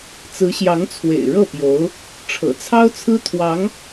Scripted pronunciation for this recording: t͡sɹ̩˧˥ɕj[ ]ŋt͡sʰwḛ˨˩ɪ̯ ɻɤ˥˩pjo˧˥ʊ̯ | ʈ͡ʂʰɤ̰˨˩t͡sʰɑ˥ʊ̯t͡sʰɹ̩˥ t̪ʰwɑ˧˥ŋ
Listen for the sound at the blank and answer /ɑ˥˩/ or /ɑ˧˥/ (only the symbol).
ɑ˧˥